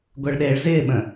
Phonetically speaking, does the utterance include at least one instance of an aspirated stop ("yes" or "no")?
no